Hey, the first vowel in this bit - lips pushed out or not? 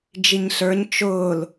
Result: no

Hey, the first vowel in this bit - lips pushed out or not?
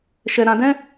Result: no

